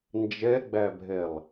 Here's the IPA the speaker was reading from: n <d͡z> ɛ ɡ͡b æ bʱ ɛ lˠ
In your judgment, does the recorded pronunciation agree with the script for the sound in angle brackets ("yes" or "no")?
no